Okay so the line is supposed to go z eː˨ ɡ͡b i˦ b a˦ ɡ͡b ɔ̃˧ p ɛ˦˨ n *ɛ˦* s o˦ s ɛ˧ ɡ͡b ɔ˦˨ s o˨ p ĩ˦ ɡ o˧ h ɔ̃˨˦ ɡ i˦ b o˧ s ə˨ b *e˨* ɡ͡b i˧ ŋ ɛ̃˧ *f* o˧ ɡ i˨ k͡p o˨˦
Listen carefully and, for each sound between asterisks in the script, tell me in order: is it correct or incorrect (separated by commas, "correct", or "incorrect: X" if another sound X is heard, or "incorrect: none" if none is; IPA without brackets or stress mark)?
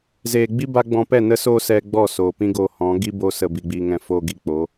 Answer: incorrect: ə˦, incorrect: i˨, correct